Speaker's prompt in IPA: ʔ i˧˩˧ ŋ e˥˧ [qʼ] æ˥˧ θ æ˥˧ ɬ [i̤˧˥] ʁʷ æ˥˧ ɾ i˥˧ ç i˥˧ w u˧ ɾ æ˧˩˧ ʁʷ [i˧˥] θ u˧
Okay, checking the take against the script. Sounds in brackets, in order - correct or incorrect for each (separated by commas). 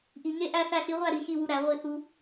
incorrect, incorrect, incorrect